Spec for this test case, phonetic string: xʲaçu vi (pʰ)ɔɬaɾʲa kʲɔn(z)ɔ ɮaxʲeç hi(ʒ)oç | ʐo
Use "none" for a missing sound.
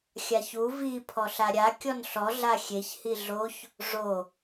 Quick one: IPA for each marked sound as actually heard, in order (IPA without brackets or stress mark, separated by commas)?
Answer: pʰ, ɬ, ɮ